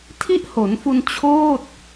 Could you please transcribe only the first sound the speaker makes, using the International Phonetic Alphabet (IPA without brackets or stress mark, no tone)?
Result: tʰ